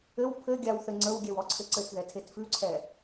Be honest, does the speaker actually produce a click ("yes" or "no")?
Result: yes